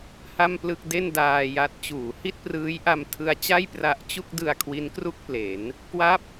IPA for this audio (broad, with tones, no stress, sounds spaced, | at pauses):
h a˥˩ m p l ɯ˥˩ k̚ d e˥˩ n d aː˧ j a˦˥ t̚ t͡ɕ uː˩˦ h i˥˩ t̚ p r ɯː˦˥ j ʔ a˧ m tʰ ɯ˦˥ a̯ t͡ɕ a˥˩ j p r a˦˥ ʔ t͡ɕ u˥˩ k̚ d ɯ˧ a̯ kʰ w i˦˥ n k r u˥˩ k̚ p l e˩˦ n | k w a˦˥ p̚